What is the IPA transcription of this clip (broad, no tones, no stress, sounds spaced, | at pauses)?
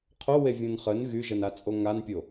qʰ o w e vʲ õ n χ ə n ɣ y ʒ ə n a t͡sʼ o ŋ a n pʲ o